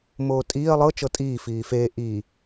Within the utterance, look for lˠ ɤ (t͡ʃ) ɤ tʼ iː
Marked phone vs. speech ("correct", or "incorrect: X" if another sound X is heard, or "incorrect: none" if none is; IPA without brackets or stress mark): correct